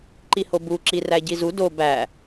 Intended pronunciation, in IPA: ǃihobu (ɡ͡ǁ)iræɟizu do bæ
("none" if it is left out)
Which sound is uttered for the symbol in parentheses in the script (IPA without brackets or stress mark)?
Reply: ǁ